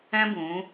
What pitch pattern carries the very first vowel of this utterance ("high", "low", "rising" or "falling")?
high